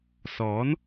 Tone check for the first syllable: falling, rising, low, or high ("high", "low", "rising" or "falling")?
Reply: rising